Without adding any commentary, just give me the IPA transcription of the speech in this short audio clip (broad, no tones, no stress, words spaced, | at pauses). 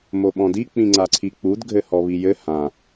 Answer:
moɓɔ̃di k͡pĩŋ͡ǀaǀʰik͡pud ɡʱɘhɔβijɘ hã